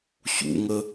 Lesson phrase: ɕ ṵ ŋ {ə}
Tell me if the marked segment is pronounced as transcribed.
yes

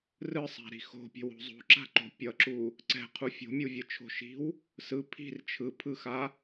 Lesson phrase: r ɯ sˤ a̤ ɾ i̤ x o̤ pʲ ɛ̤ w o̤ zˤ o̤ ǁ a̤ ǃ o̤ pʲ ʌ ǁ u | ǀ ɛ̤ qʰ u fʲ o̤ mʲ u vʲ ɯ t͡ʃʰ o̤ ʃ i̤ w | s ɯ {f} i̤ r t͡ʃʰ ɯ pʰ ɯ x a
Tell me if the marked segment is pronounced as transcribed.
no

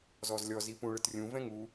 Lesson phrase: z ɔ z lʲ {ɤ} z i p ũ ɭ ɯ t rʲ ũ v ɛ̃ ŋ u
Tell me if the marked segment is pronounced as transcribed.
no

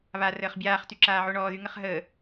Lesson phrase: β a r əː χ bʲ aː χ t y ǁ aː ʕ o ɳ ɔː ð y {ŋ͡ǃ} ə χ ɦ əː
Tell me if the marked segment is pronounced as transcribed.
no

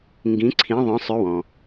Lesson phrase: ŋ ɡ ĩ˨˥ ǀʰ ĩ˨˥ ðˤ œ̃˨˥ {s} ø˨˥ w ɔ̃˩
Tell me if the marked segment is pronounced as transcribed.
no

